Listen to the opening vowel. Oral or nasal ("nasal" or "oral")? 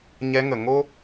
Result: oral